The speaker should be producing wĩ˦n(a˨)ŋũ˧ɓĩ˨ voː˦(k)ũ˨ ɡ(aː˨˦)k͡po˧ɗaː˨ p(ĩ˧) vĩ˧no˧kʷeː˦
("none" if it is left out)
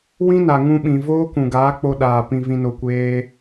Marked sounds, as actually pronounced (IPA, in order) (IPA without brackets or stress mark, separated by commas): a˨, k, aː˨˦, ĩ˨